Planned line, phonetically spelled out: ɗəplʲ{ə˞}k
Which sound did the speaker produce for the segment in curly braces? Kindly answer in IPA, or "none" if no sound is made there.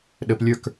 ə˞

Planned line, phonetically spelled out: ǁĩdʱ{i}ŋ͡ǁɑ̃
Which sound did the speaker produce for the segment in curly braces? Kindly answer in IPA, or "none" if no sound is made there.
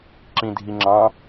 i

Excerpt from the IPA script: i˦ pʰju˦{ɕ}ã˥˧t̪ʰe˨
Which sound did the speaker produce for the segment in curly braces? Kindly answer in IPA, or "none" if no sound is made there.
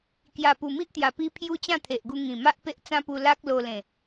t͡ɕ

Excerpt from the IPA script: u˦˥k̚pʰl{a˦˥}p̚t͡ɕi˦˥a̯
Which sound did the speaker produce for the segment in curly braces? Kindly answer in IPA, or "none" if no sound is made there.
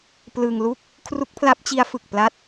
a˦˥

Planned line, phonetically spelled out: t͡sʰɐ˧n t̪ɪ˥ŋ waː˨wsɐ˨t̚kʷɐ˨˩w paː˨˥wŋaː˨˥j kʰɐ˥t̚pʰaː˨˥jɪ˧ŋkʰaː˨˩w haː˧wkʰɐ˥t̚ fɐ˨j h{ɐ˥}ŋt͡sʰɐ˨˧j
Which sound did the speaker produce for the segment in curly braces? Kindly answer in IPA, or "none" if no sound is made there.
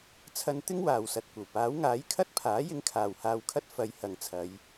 ɐ˨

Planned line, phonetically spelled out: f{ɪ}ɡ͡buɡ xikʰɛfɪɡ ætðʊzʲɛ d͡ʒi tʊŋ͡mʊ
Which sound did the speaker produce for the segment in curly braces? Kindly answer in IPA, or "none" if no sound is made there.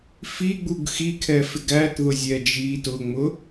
i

